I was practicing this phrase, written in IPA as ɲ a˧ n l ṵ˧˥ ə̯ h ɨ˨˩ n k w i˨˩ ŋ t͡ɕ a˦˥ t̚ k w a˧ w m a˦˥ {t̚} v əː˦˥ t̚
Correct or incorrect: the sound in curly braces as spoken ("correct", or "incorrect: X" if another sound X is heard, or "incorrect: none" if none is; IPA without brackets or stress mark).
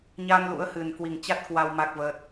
incorrect: k̚